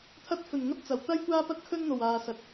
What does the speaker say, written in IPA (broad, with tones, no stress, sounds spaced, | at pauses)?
t̪ʰ ɐ˧ t̚ f ɵ˨˩ n ŋ ɐ˥ t̚ t͡s ɐ˨˩ w t̪ ɐ˥ j kʷ aː˥ p ɐ˥ t̚ kʰ ɵ˥ n n̪ o˨˩ w aː˨ s ɐ˨ t̚